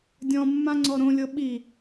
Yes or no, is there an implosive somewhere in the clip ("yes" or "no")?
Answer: yes